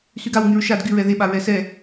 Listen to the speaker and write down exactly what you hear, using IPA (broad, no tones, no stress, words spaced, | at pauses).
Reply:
syɡawŋyɹ ʃad ɡyɹɛ ðeɓa ɹɛsɛ